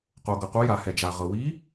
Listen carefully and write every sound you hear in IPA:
q o˩ ɡ ɤ˩ q u˨˦ j a˩ h ɛ˩ d͡ʒ a˩ ʁ ɤ˩ w i˨˦

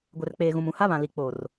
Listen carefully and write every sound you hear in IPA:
ɡʷ ɛ˨ r k͡p eː˨ ɣ ũ˨ m ũ˨ h a˦ β ã˨ l i˨ k͡p o˨ r

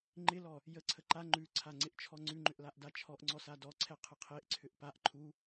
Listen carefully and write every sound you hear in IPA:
ŋ͡ǃ ɪ l ɔ | j ə ǀʰ ə ǃ a ŋ͡ǃ ʉ ǀʰ a ŋ͡ǀ ɪ ʔ t͡ʃʰ ɔ ŋ͡ǀ ʉ ŋ͡ǃ ʏ ʔ l a ʔ d a t͡ʃʰ ɔ ʔ ŋ͡ǀ ɔ s a d ɔ ǀʰ ɛ qʰ ə qʰ e ʔ ǀʰ ʏ ʔ p a ʔ ǃʰ u

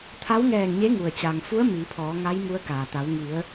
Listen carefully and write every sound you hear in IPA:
t̪ʰ a˧˥ w ŋ ɛː˧˩ ŋ ɲ e˧˥ ŋ u˩ ə̯ t͡ɕ aː˩ ŋ f u˧˥ ə̯ m iː˩˧ pʰ ɔː˩˧ ŋ a˧˥ j m u˧˥ ə̯ k aː˩ t̪ a˩˧ w ŋ i˩˧ ə̯

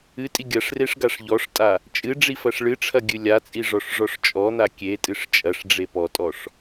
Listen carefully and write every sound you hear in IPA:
ɨ tʼ i ɡʲ ɐ ʂ r e ʂ ɡ a ʂ ʎ ɔ ʂ tʼ a | t͡ʃʼ ɨ ɖ͡ʐ i f ɐ ʂ ɭ ɨ ʈ͡ʂʰ ɐ ɡʲ ɨ lʲ a t͡sʼ i ʐ ɔ ʂ ʐ ɔ ʂ t͡ʃʼ ɔ n̪ a kʲ e tʼ ɨ ʂ t͡ʃʼ ɐ ʂ ɖ͡ʐ e p ɔ tʼ ɔ ʂ

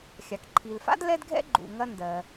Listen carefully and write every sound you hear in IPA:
xʲ a˩ k ǃʰ i˩ l f a̰˥ d l ɛ˥ d ɡʱ ɛ̰˥ ɡ͡ǃ ṵ˩ ŋ ɐ˥ n d ɜ˩

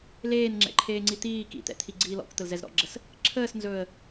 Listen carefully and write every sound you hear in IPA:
l eː n ŋ͡ǁ ɛ̰ ǃʰ eː ŋ͡ǀ i t̪ iː k ḭ t̪ ɛ̰ t̪ʰ i ɡ͡ǀ iː l ɔ̰ k t̪ ə l z ɛ z ɾ ɔ̰ ɡ͡ǁ ə s | ǁʰ əː s n z ɵː ə̯

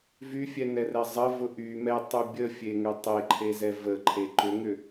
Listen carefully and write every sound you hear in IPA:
v y fʲ ɛ n ɛ r ɛ zˤ ə v ʊ ʔ y m ɛ tˤ y bʲ ə fʲ e ŋ ʏ tˤ e ǃʰ e z ɛ v ə ǃʰ e ǃ ʏ ŋ ʏ

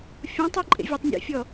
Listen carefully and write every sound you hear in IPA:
fʲ õ tˤ ɯ ǃʼ ḛ vʲ a tˤ nʲ ḛ fʲ ɔ

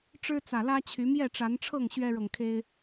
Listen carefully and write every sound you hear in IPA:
ʈ͡ʂ ɻ̩˦ t͡s ä˨˩ l ä˦ t͡ɕʰ y˨˦ m j ɛ˥˨ ʈ͡ʂ a˨˦ n ʈ͡ʂʰ ɤ˥˨ ŋ ɕ ɥ ɛ˦ ɻ ɤ˨ ŋ kʰ e˦ ɪ̯

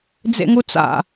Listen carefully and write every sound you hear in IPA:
d͡z ḛ ŋ u t͡s a̰

